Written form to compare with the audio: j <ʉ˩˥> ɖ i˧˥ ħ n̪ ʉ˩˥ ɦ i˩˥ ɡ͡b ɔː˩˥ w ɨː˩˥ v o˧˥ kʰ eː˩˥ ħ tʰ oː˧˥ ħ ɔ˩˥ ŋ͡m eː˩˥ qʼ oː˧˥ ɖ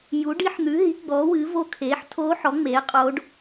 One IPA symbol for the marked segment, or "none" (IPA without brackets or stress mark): u˩˥